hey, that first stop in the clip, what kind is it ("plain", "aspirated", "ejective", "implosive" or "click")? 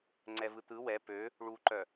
click